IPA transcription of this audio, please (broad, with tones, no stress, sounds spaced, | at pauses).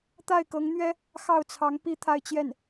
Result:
t̪ a˥˩ ɪ̯ k ɤ˧˥ ŋ n̪ ɥ ɛ˥ | x ɑ˥˩ ʊ̯ t͡sʰ ɑ˧˥ ŋ p i˥˧ t̪ʰ a˥˧ ɪ̯ t͡ɕ j ɛ˥˩ n